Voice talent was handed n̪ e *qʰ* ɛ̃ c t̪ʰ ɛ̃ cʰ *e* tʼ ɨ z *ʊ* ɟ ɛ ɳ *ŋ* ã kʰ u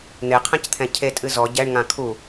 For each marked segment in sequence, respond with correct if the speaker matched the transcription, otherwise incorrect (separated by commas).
correct, correct, incorrect, correct